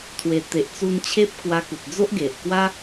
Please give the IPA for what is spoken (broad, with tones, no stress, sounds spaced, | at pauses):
t̪ʰ w e˨˩ t̪ e˨ ʔ t͡s u˧ n t͡ɕʰ e˦ p̚ k w a˧ k u˨ t̚ d͡z o˦ ʔ ɡ e˨ ʔ k w a˦